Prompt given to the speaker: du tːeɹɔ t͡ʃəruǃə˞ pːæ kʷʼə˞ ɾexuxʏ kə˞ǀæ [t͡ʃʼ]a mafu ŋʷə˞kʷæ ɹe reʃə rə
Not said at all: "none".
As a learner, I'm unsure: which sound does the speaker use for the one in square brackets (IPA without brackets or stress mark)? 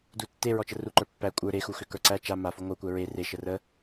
t͡ʃ